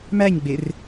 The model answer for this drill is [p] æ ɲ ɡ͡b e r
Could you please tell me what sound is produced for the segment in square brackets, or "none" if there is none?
m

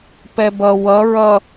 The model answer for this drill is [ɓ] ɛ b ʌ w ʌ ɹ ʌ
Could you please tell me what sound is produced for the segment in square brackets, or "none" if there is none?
p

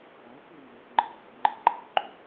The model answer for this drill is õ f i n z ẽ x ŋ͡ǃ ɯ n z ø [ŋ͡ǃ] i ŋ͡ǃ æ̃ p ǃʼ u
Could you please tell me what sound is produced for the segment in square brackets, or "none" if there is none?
ŋ͡ǃ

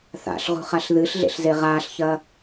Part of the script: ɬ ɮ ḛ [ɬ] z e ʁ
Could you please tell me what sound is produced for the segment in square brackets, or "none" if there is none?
ɬ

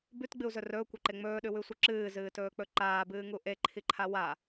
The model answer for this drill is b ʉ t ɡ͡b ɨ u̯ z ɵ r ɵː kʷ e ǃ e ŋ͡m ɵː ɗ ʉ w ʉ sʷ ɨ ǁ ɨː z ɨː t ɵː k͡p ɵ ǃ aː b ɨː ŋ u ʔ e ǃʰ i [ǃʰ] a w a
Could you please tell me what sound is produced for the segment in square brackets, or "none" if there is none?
ǃʰ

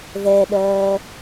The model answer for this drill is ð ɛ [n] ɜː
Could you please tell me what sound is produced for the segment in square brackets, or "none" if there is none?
ɗ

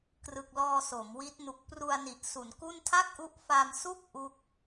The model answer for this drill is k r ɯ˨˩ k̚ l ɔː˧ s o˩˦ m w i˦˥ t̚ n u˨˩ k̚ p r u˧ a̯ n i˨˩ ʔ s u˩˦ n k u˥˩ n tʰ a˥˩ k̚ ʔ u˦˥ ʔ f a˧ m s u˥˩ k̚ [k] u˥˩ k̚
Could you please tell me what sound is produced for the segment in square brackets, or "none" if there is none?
ʔ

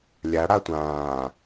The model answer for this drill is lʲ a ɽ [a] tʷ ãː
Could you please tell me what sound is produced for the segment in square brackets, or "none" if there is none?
a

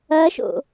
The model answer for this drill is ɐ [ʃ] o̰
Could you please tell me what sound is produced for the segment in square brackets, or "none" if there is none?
ʃ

